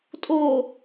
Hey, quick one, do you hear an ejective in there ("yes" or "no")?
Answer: yes